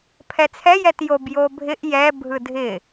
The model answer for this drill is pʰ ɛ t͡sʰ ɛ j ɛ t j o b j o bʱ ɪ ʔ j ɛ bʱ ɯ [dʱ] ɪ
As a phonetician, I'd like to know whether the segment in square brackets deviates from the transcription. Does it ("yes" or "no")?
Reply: no